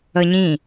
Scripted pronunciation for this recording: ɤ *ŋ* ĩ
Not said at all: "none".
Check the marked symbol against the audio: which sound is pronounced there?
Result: ɲ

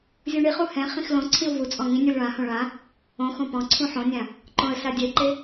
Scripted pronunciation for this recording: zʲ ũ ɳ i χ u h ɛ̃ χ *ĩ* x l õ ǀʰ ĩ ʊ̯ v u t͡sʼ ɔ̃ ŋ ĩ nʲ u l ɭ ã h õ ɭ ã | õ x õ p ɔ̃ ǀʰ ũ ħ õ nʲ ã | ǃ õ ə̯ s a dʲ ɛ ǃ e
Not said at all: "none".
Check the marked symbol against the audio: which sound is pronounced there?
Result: ĩ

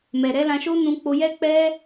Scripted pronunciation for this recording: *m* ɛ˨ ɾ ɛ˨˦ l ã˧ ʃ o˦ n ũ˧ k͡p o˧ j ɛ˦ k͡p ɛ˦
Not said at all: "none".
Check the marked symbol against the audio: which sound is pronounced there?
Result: m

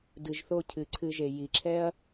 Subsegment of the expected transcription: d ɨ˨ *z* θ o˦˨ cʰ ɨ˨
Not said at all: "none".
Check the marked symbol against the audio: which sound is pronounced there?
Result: ʒ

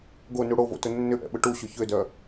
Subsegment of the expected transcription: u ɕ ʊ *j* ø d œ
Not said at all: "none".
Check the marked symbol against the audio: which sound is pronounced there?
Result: ç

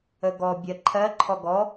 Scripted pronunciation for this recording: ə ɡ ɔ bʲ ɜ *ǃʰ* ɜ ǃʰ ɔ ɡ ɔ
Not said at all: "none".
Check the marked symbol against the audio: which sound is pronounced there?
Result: ǃʰ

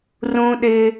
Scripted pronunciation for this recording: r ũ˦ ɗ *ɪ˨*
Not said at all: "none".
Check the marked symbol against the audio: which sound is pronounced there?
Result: ɪ˦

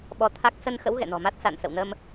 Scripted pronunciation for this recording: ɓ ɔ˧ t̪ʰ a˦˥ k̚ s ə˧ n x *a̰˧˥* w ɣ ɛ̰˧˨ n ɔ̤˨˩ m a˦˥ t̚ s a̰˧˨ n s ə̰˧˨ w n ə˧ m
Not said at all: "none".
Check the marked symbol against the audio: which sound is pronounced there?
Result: ə̰˧˥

